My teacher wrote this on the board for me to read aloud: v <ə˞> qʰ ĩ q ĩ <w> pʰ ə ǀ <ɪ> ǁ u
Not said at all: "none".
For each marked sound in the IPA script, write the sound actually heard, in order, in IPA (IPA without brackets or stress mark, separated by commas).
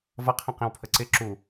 ʌ, w, ɪ